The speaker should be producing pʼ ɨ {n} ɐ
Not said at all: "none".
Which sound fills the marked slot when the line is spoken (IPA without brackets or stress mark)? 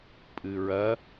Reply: ɹ